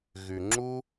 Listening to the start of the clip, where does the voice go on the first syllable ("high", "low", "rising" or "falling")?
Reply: low